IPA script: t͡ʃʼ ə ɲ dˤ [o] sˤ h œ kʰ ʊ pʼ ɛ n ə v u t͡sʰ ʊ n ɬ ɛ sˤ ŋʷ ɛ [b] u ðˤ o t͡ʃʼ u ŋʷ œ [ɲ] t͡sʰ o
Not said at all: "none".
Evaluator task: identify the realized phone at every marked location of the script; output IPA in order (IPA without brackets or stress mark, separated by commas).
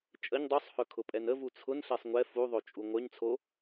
u, f, ɲ